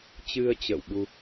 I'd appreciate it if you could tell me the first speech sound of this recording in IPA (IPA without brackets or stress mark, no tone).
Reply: t͡ɕ